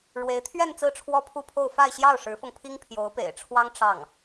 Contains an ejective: no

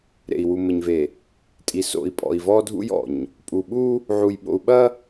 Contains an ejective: yes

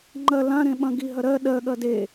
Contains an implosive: yes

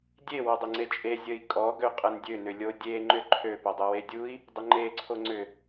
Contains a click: yes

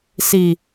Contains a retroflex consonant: no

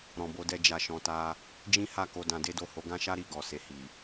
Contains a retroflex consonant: no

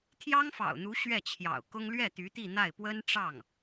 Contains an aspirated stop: yes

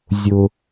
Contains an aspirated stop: no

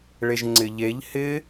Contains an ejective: no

